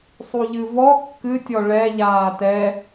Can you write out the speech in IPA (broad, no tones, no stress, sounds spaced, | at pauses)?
sˤ u ʎ ɨ v ɔ kː ɨ tʲ ɔ ɭ ɛ ʎ aː t ɛ